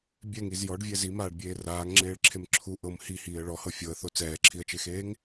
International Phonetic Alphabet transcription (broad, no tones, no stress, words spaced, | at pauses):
bʲɛŋiz jɔɖvʲɛ zimaːɖbʲeː raːŋŋ͡ǁeːɭǁʰem ǁʰu ʔɤm hihiːə̯ ɭɔhɤ fʲɤə̯θo t͡sɛːǁʰiə̯t͡ʃexeːŋ